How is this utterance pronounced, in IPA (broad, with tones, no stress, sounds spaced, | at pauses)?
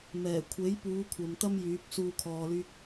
m ɛː˨˩ kʷʰ e˨˥ j p uː˨˧ kʷʰ ɐ˨ m t̪ ɐ˥ m j yː˨˥ p̚ s uː˧ kʰ ɔː˧ l yː˥ k̚